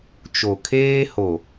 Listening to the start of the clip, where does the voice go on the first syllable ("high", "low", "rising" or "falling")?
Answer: low